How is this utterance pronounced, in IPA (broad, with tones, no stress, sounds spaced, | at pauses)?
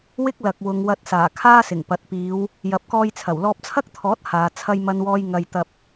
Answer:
w ɪ˥ k̚ l ɐ˨ k̚ w ʊ˨˧ ŋ w ɐ˧ t̚ s aː˨˩ kʰ aː˥ s ɪ˨˩ ŋ p ɐ˨ t̚ p iː˨˧ w | j ɐ˨ p̚ k ɔː˧ j t͡sʰ ɐ˨˩ w l ɔː˧ p̚ t͡sʰ ɐ˥ k̚ t̪ʰ ɔː˨˥ t̚ h aː˨˧ t͡sʰ ɐ˥ j m ɐ˥ n w ɔː˥ j ŋ ɐ˧ j t̪ ɐ˧ p̚